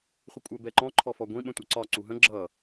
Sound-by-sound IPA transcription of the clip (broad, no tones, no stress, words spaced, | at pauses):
χʷɪkʷʼɜbɛǃɔ̃ ǃʰɔfɔɡʷĩ ɓə̃tʷʌǀɒ ǀuɦə̃ ɡ͡ǁʌ